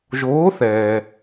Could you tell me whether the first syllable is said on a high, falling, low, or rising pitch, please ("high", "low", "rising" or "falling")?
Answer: rising